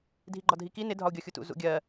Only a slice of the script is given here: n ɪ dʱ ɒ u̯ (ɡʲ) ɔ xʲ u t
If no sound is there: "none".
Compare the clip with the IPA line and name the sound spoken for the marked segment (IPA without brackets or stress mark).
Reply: ɡʲ